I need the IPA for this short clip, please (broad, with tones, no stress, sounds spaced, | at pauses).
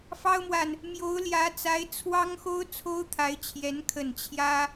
f ɑ˥ ʊ̯ m w a˨ n | m j o˧˥ ʊ̯ l j ä˧˥ t͡s a˧˥ ɪ̯ t͡sʰ w ɑ˥ ŋ x o˥ ʊ̯ t͡sʰ o˥ ʊ̯ t̪ʰ a˧˥ ɪ̯ t͡ɕʰ j ɛ˧˥ n kʰ ə˨˩ n t͡ɕʰ j ä˥